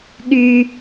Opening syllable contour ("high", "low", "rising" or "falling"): high